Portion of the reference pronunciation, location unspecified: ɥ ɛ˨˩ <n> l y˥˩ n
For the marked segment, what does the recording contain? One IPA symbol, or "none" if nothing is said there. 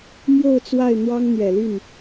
none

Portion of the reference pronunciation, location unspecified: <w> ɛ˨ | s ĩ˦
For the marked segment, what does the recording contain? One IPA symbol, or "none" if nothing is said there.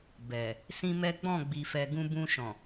b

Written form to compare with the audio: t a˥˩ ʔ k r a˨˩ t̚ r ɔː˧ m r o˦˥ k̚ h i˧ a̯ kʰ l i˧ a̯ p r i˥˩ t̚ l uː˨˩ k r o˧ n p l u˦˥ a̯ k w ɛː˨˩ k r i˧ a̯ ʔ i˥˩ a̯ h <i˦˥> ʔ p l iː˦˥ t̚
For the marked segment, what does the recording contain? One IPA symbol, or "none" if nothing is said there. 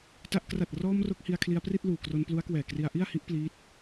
i˦˥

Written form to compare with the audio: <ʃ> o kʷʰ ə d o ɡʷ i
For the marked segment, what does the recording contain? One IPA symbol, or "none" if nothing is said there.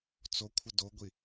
t͡s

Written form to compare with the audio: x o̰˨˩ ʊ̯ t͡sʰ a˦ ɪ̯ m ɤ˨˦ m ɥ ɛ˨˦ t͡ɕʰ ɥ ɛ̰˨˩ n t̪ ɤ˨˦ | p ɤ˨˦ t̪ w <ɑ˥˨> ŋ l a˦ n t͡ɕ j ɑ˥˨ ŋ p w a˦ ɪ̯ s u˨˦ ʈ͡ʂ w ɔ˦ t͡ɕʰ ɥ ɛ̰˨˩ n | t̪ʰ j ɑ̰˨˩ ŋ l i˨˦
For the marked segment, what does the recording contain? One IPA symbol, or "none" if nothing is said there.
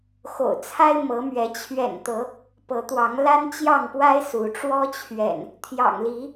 ɑ˨˦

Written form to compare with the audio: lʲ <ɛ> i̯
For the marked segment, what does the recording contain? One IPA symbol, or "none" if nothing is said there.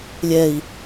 ɛ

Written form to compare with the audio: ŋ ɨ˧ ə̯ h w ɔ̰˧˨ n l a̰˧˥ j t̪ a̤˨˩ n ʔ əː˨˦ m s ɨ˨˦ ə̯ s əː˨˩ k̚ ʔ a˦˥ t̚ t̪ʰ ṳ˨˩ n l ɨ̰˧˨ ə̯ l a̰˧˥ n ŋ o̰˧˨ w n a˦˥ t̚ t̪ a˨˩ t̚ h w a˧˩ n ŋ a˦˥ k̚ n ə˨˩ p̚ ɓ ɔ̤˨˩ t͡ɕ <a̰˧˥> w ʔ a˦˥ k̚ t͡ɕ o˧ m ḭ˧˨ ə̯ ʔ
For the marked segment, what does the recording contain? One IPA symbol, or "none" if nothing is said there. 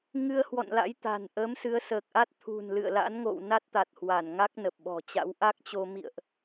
a̰˧˥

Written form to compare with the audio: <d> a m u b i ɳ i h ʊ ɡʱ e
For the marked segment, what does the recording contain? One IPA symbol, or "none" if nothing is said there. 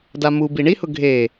d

